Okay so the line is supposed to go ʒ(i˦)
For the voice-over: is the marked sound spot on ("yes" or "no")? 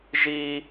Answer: yes